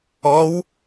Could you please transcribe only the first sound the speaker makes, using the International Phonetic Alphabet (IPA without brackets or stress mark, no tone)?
ɔ